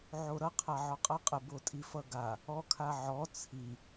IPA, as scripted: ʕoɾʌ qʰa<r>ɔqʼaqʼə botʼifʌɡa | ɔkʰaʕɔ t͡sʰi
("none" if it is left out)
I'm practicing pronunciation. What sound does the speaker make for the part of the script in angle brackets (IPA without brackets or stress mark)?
ʕ